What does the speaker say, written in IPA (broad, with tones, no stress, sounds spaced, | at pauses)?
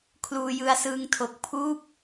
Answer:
kʰ l uː˧ j ɯ˧ a̯ s ɯː˧ ŋ tʰ o˨˩ k̚ pʰ uː˥˩ p̚